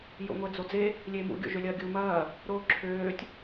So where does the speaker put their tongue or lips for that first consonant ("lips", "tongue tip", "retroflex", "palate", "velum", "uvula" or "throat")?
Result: palate